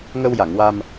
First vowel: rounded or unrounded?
unrounded